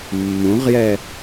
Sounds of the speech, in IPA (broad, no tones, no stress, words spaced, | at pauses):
mːũʁjɛ